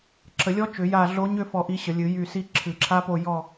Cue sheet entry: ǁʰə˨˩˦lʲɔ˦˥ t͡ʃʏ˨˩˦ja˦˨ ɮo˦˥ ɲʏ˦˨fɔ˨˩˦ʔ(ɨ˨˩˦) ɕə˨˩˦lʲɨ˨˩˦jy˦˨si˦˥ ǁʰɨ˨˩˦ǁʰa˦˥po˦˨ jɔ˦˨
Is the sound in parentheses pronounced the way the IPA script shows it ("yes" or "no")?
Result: no